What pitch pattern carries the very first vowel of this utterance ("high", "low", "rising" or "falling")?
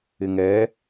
low